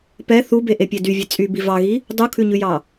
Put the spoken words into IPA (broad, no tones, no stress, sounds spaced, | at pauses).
p ɛ θ u b e ʔ e pʲ ɛ d y vʲ ɛ t͡sʼ y b i v ɑ ɣ i | dˤ u kʰ ʉ ɲ ʉ j ɑ